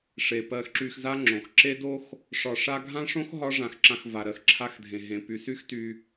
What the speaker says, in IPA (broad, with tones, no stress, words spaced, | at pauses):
ʂe˨ pɜ˧xǁy˧xza˦ ŋ͡ǁõ˨xǁe˦do˦x | ʂɒ˧ʂa˦ ɡʱã˦ʂõ˦x ɦɒ˦ʐã˧xǁã˧xva˨ ɾɜ˨xǁʰa˧xdʱẽ˨ɦẽ˨ py˨sy˦xty˧